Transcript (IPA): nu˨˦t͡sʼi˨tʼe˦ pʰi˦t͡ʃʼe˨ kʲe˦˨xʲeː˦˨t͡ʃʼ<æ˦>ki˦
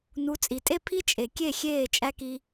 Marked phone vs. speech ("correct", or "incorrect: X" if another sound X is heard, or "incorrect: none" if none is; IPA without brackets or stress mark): correct